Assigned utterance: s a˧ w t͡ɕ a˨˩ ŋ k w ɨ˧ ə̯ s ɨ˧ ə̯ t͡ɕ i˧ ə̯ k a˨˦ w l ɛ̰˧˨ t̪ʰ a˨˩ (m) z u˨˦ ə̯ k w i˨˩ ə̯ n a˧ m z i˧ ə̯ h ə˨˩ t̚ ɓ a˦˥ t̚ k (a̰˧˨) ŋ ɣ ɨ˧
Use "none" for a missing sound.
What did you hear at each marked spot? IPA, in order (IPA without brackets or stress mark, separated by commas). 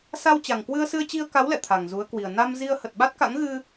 ŋ, a̰˧˥